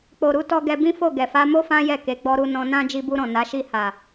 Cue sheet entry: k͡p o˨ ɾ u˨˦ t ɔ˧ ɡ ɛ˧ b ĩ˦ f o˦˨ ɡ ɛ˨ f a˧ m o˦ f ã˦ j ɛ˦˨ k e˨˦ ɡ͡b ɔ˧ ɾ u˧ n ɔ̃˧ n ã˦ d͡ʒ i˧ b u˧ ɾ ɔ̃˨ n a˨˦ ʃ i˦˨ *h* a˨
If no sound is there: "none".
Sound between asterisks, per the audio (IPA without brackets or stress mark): h